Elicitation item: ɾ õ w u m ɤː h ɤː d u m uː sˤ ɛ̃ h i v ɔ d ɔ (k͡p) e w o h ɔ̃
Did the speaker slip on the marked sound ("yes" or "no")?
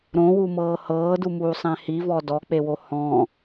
no